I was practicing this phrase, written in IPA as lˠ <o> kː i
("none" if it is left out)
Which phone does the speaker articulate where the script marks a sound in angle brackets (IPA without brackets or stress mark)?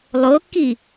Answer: o